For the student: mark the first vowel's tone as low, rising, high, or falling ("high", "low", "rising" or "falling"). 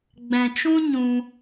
low